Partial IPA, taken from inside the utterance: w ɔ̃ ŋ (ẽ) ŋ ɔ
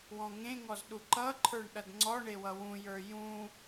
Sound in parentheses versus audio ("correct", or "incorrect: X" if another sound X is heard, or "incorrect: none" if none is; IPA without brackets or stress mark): correct